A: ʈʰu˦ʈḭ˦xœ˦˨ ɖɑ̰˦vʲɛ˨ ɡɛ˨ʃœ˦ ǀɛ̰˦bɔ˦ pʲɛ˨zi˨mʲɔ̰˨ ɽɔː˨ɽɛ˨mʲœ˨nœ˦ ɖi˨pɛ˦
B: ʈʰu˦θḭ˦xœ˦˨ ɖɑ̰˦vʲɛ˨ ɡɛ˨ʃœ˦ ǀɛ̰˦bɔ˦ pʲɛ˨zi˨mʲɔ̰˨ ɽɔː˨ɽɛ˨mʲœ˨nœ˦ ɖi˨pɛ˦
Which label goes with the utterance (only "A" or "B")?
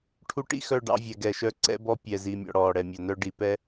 A